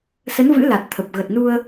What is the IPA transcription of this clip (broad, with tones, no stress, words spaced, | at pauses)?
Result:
sə˨˦nvɨ̰˧˥ la˨˩t̚ t̪ʰə˨˩p̚ ɣə˨˩t̚nu˧ə̯